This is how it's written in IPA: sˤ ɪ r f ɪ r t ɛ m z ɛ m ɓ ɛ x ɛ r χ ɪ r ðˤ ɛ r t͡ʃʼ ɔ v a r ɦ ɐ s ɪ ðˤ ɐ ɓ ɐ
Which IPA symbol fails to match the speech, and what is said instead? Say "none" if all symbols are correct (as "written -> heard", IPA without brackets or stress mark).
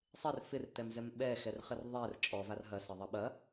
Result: none